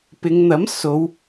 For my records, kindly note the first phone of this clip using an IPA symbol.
p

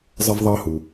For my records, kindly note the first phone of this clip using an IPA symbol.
zˤ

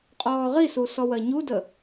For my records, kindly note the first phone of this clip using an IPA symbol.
qʼ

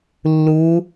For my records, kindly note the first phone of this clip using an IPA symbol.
lː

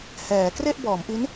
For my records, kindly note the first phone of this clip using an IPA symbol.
h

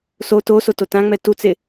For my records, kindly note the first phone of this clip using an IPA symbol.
s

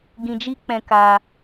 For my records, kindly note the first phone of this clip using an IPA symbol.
ɡ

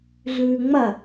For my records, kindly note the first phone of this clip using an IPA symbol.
ɮ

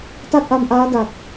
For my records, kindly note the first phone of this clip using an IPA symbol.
t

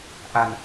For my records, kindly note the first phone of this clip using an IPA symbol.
ʔ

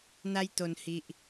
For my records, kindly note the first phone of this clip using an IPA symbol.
n̪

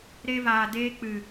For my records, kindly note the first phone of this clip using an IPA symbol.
ɾ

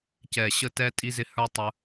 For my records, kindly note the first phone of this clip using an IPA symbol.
c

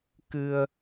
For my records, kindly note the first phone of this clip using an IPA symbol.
k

